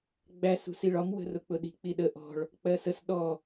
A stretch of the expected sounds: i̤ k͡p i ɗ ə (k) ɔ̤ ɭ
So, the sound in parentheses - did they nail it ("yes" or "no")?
no